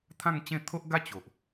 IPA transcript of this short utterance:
t̪ʰã˥˧ŋt͡ɕẽ˥˧ t̪ʰo˦ʔɡa˦ t͡ɕo˨ʔ

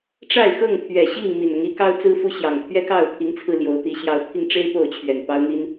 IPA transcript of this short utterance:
ʈ͡ʂa˥˨ɪ̯xɤ˥˨ŋt̪ʰɥɛ˨˩ɕi˥˨ŋ mi˨˩nʊ˨˦ŋi˨˦kɑ˦ʊ̯ t͡sɹ̩˦fu˦ɕjɑ˨˩ŋ t̪ʰɥɛ˦kɑ˥˨ʊ̯pʰi˨˦ŋt͡sʰɹ̩˧ ljo˨˦ʊ̯t̪i˨˦ ɕjɑ˨˦ʊ̯pʰi˧ŋʈ͡ʂe˦ɪ̯ po˥˨ʊ̯t͡ɕʰɥɛ˨˩n pɑ˦ʊ̯n̪i˦n

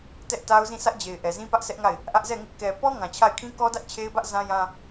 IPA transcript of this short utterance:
tɛ˦ʔta˦ʊ̯zĩ˦˨ sʰä˦ʔd͡ʑe˨ɪ̯ʔɛ˨zĩ˦ pä˦ʔsɛ˦ʔŋa˦˨ɪ̯ | ʔä˦ʔzɛ˦˨ŋɪ˦ʔ kɛ˨ pɔ˦ ŋã˨t͡ɕʰa˦˨ɪ̯ kʰĩ˦kɔ˦dä˦ʔ t͡ɕʰe˦ɪ̯bä˦ʔ zã˦jã˦

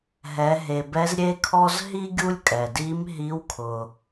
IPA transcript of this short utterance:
ɦɛ˩˧ɦe˩bɛ˧˥z ɾʲe˧kʰɔ˧z ɦi˥ ɡʲu˥lʲkʼɛ˩ di˧˥mɦi˧˥wkʰʊ˩

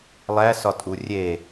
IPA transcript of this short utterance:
lˠæsɒtʼu rʲe

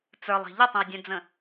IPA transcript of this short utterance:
t͡sə˞lˠi̤ ʎətˤə̃u̯dʲœ̃d͡zə̃

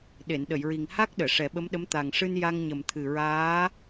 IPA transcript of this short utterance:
ɗe˨˩˨nɗə˨˩˨jɹi˨˩ŋ ha˦˥k̚ ɗəː˨˩˨ʂɛ˨˩˦ ɓə˧˥mɗə˧˥m t̪a˨˩ŋʂɨ˧n ja˧ŋɲə˨˩mt̪ʰɨ˨˩ ɹaː˧˥

